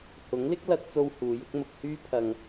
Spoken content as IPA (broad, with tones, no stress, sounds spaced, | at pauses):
h ʊ˨˥ ŋ l ɪ˥ k̚ l ɐ˧ t̚ t͡s o˧ w h uː˨˧ j ʊ˥ k̚ m ʊ˧ k̚ h yː˥ pʰ ɐ˧ ŋ